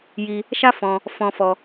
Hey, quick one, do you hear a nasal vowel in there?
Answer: yes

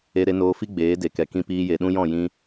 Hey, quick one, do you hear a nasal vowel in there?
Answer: yes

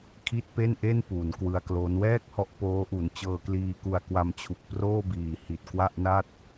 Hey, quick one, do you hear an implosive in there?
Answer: no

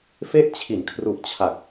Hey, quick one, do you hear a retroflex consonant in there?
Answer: no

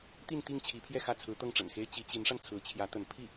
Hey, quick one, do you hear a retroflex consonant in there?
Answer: yes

